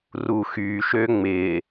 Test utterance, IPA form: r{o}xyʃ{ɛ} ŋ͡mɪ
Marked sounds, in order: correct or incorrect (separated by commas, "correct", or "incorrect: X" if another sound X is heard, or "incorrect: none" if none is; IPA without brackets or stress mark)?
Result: incorrect: u, incorrect: ø